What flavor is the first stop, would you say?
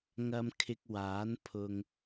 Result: aspirated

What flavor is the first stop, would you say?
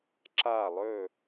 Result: click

